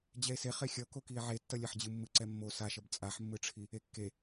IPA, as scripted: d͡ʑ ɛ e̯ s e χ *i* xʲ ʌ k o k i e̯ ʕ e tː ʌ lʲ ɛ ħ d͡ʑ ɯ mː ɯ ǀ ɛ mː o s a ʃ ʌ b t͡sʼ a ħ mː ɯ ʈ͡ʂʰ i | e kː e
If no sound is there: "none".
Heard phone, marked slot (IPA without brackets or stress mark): e